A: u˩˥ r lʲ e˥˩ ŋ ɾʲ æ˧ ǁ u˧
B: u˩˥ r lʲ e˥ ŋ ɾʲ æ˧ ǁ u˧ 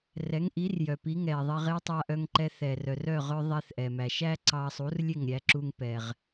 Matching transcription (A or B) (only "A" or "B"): A